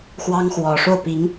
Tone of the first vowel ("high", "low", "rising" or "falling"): high